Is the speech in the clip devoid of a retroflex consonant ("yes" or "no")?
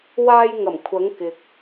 yes